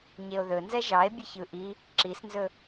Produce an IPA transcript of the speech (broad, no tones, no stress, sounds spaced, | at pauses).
ɲ e o̯ ð ɵ n z ɛ ʒ ɑ e̯ bʲ ə ç ɯ ʔ i | ǁ i s n z ɵ